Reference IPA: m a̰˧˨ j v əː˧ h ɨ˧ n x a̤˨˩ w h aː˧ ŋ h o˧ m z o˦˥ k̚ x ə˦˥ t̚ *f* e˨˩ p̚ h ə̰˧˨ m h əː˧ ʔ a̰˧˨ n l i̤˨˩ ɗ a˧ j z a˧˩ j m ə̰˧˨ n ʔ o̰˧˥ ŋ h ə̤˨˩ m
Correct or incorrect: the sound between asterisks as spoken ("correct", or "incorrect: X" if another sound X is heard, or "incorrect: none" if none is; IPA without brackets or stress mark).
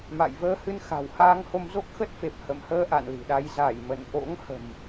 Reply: correct